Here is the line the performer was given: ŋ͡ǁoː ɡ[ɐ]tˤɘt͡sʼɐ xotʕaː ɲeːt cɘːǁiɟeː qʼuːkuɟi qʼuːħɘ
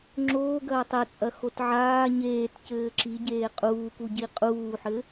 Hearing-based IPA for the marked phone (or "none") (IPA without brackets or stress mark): ɐː